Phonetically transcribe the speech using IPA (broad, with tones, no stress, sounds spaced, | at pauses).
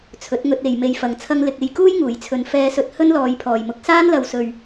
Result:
t͡sʰ ɵ˨˥ t̚ ŋ ɵ˧ t̚ e˨ j m e˧ j f ɐ˨ ŋ t͡sʰ ɐ˥ ŋ l ɪ˨ k̚ e˧ j k uː˥ j ŋ uː˨˩ j t͡sʰ ɵ˨ n f ɛː˧ s ɵ˧ t̚ h ɵ˥ n l ɔː˨˧ j pʰ ɔː˨˩ j m ʊ˨˥ k̚ s aː˥ n l ɐ˨ w s ɵ˨ ɥ